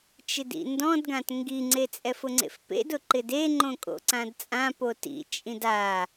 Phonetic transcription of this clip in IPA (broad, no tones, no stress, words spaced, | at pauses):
t͡ʃɪdḭndɔ̃dɡãt ŋɡiŋ͡ǀe t͡sʼɛfʊŋ͡ǀḛfpḛd ʊǃɪde ŋ͡ǃõkʼo̰ǀãdt͡sʼã potḭ t͡ʃʼĩda